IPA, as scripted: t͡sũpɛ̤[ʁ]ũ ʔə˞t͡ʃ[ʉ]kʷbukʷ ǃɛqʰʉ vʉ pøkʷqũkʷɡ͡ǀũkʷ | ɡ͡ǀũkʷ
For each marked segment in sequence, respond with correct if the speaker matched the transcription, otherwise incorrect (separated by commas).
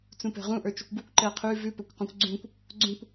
correct, incorrect